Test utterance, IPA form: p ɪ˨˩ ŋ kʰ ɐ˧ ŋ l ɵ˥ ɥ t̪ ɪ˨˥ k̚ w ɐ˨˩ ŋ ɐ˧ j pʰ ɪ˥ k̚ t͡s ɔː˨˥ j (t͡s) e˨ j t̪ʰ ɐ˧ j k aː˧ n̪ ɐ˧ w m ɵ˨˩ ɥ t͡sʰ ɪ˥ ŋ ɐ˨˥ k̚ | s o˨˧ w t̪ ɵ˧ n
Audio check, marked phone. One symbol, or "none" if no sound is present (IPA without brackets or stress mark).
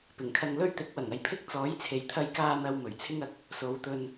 t͡sʰ